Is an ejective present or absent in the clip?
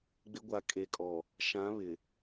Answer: present